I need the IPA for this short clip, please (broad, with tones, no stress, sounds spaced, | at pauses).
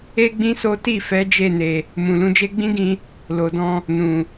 e˦ ɡ͡b ĩ˦ s o˦ t i˦˨ f ɛ˨˦ d͡ʒ e˦˨ n e˨ | m ũ˨ l ũ˧ d͡ʒ e˦ ɡ͡b ĩ˦ ɡ ĩ˧ | l o˨ d ɔ̃˧ | n ũ˨